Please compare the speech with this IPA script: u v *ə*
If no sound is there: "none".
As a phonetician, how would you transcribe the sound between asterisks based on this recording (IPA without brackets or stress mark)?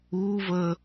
ə